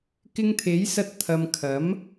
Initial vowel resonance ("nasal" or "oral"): oral